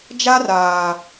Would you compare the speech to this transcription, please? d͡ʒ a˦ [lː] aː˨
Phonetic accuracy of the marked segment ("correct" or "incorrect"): incorrect